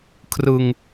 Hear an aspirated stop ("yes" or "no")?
yes